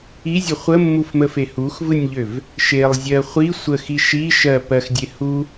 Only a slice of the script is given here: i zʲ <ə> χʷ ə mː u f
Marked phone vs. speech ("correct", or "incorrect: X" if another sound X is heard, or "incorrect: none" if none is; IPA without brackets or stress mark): correct